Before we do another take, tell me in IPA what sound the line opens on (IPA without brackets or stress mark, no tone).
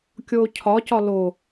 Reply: kʲ